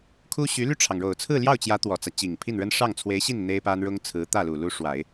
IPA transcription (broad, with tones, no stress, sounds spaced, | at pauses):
kʰ u˥ ɕ y˧˥ l y˥˩ ʈ͡ʂʰ ɑ˩ ŋ ɻ o˨˩ ʊ̯ t͡sʰ ɹ̩˥˧ l j ɑ˥˩ ʊ̯ t͡ɕ j ä˧˥ t̪ w ɔ˨˩ t͡s ä˦ t͡ɕ i˨˩ ŋ pʰ i˥˩ n ɻ ə˥ n ʂ ɑ˥˩ ŋ t͡sʰ w e˧˥ ɪ̯ ɕ i˥˩ n n̪ e˥ ɪ̯ p a˥ n ɻ ʊ˥ ŋ t͡sʰ ɹ̩˧˥ t̪ ä˥˩ l u˨˩ l u˧˥ ʂ w a˨˩˦ ɪ̯